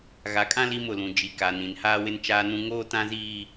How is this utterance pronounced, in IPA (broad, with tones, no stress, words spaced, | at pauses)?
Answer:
ɣa˨kʼã˦ li˦mʊ˨lũ˨ d͡ʒi˨ka˨nĩ˨n haː˦wɪ˦nt͡ʃaː˦nũ˦ ŋoː˦tã˦ziː˦